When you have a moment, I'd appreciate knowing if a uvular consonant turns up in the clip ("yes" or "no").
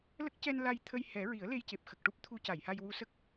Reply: no